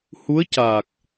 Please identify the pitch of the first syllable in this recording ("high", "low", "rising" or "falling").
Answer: rising